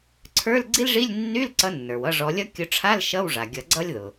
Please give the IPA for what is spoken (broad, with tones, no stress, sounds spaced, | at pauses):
ǀʰ ə˞˧˥˧ l ɡ͡ǀ i˥ l ʐ i˧˥˧ lʲ nː y˧˥˧ l ǀ ʌ˨˦ nː ə˞˩ w ʌ˧˥˧ ʐ ɔ˨˦ lʲ ʌ˥ kʲ ʊ˨˦ ʈ͡ʂʰ a˧˥˧ l ʃ ʌ˧˥˧ w ʐ a˩ ɡʲ ʌ˨˩˦ ɡ͡ǀ ʌ˥ lʲ ð ʊ˩